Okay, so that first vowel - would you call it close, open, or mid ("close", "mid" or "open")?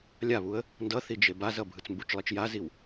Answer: open